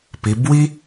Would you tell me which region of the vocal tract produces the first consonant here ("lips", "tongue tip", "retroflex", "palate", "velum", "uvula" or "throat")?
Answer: lips